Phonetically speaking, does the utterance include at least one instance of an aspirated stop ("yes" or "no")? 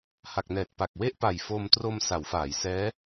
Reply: no